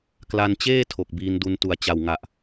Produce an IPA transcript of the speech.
k l a˧ n t͡ɕ eː˥˩ tʰ o˨˩ k̚ b iː˧ n d u˧ n t u˩˦ a̯ t͡ɕ a˨˩ w ŋ a˨˩ ʔ

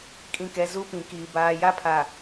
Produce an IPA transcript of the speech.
kʼ ĩ˨ k ɛ˨ z u˦ p ĩ˨ k iː˨ b aː˨ j a˦ pʰ a˨

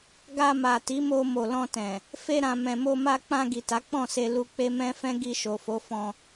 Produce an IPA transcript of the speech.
ɡ a˧ m a˨ t i˨˦ m o˧ m o˨ l ɔ̃˧ t ɛ̃˨ | f e˧ ɾ ã˨ m ɛ̃˨ m o˧ m a˧ k͡p ã˧ ɡ i˨ t a˨˦ k͡p ɔ̃˦˨ s e˧ l u˧ k͡p e˦ m ɛ̃˦ f ɛ̃˦ ɡ i˧ ʃ o˨ f o˨˦ f ɔ̃˧

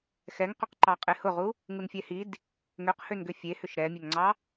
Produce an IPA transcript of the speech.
x ɛ ŋ q ø q ǃ ɑ qʼ e h ʊ ʁ u | ŋ u n fʲ ɛ h i d | ŋ ø q h ø n ɡ ʏ fʲ e h ʏ ʃ ɾ ɛ mʲ ø ŋ ŋ͡ǀ ɑ

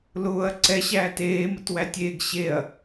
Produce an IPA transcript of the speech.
l ʊː ɐ̯ ǀ ɛ ɕ æː t eː m ə t w æ tʲ eː ɡ ɕ e ɐ̯

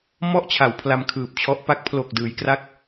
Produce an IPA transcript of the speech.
m ɔ˥˩ ʔ t͡ɕʰ a˩˦ w pʰ l a˧ m kʰ ɯː˨˩ p̚ t͡ɕʰ ɔ˦˥ ʔ p a˦˥ k̚ pʰ l oː˨˩ k̚ d ɯː˩˦ j k r a˦˥ k̚

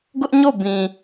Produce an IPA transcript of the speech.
ɡ ʊ˦ ʔ ɲ o˦˨ b ĩ˨

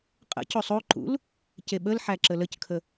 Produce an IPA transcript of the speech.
qʼ ə̰ c o sˤ o ǃ ṵ l | c e ɓ ə l ħ æ ǁ ə l ə c kʰ ə

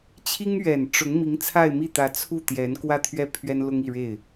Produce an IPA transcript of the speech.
t͡ɕʰ i˥ ŋ ɥ ɛ˨˩ n ʈ͡ʂ ʊ˧˥ ŋ m i˧˥ ŋ t͡sʰ a˥˧ ɪ̯ m i˥˩ t̪ ä˧˥ t͡sʰ u˥˩ t̪ j ɛ˧˥ n k w ä˥˧ t̪ʰ ɥ ɛ˥˩ pʰ ɥ ɛ˥ n l ʊ˥ ŋ i˥˧ ɻ e˥˩ ɪ̯

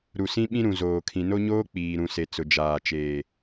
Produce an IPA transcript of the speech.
ɾ u˨ s ĩ˦ ɓ ĩ˦ ɾ ũ˨ z oː˨ kʰ ĩ˨ n o˦ ɲ oː˦ k͡p iː˨ ɾ ũ˨ s e˨ t͡s ʊ˨ d͡ʒ aː˨ t͡ʃ eː˨

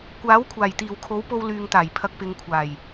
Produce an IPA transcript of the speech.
kʷ aː˨˥ w kʷʰ aː˨˩ j t̪ iː˨˩ w kʰ o˨˥ w p o˧ w l yː˨ ŋ t̪ aː˨˩ j pʰ ɐ˨ k̚ p ɪ˨ ŋ kʷʰ aː˨˩ j

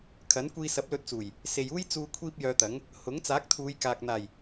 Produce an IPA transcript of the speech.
kʰ ɐ˨˥ n kʷ iː˧ s ɐ˨˥ p̚ l ɵ˧ t̚ t͡s uː˨˩ j | s e˨ j uː˥ j t͡s uː˧ kʷʰ iː˥ p̚ j œː˧ t̪ ɐ˨˥ ŋ | h ʊ˨˥ ŋ t͡s aː˨˥ k̚ t̪ʰ uː˨˧ j k aː˨ k̚ n̪ aː˨˩ j

